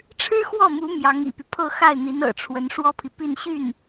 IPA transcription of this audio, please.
ʈ͡ʂʰɻ̩˥xwɔ˥˩mu˧˥ mjɑ˧˥ŋḭ˨˩py˦pʰɤ˥˧ xa˥˩ɪ̯n̪i˧˥n ɤ̰˨˩ʈ͡ʂʰwə˧˥n ʂwɔ˥pʰi˨pi˥˧nɕy˥˩n

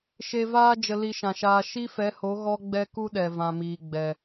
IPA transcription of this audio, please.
ʃe˧vaː˦ d͡ʒə˧li˧ʃã˨ʃaː˧ ʃi˦fɛ˨˦ho˨˦ ɣɔ˦ɡ͡bɛ˦ku˦ɗɛ˨ vã˨miː˨ɡ͡bɛ˨

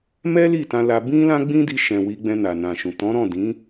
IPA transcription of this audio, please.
mɛ˦li˦˨ tã˧la˧ bĩ˦ lã˦ɡ͡bĩ˦di˧ʃɛ̃˨ wi˧ ɡ͡bɛ̃˧na˨nã˨ʃũ˨ tɔ̃˨˦ɾɔ̃˦˨dĩ˨˦

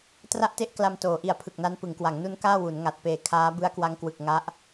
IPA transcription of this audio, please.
tra˦˥ʔte˦˥ʔ kla˧mtoː˩˦ ʔi˨˩a̯pʰɯ˨˩k̚na˦˥n pɯ˩˦ŋkwa˩˦ŋnu˦˥n kaː˥˩wu˩˦n ŋa˨˩t̚peː˨˩ kʰaː˦˥ bɯ˦˥a̯kwa˦˥ŋkwɯ˨˩k̚ ŋa˦˥ʔ

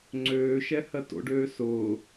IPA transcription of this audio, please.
ŋ͡ǀøːʃɛ hɜto̰ɖøː sʊː

